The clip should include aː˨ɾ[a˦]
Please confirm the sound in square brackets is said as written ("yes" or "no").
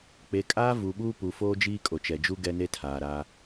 yes